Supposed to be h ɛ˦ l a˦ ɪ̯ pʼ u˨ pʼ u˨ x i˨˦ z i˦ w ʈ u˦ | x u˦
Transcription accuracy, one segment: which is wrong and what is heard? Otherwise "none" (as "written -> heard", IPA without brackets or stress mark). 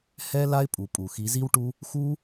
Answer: none